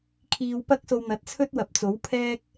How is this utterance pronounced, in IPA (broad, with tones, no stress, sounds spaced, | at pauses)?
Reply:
kʰ iː˧ w p ɐ˥ k̚ s o˧ w n̪ ɐ˨ t̚ t͡sʰ ɵ˥ t̚ w ɐ˨ p̚ t͡s o˨˥ w pʰ ɛː˥ k̚